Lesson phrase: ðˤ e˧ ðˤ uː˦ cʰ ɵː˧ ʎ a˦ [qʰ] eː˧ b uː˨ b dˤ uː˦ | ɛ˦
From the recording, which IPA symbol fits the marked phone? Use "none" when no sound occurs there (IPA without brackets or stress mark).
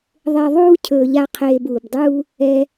qʰ